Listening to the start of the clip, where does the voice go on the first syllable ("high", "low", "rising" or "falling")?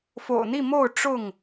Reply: low